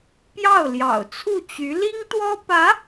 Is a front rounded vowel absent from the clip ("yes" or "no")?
no